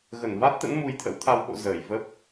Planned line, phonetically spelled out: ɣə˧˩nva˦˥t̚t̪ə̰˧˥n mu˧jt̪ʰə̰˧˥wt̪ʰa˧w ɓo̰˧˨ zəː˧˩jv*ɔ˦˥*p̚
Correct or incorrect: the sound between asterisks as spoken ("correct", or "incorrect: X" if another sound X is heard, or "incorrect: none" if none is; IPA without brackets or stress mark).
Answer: incorrect: ə˦˥